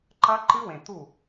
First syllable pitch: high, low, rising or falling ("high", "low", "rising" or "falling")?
high